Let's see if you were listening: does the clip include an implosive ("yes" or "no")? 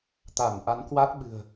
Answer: yes